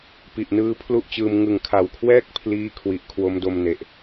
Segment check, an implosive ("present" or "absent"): absent